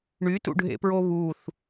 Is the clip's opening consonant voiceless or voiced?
voiced